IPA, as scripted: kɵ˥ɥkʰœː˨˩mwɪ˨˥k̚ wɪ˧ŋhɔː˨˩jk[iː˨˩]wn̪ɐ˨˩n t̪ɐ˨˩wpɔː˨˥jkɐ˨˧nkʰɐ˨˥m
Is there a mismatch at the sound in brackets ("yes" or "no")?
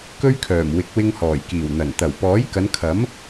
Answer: no